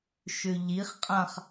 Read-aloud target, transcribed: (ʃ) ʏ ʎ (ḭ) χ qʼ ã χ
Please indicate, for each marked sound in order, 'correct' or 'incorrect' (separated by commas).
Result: correct, incorrect